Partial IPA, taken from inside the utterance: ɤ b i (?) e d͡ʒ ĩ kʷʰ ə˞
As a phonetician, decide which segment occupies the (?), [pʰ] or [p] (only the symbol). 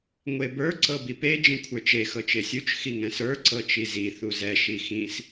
p